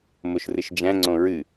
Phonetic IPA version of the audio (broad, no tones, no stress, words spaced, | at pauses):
moʃrɨʃd͡ʒæ̃ŋ͡ǀõ ɹɨ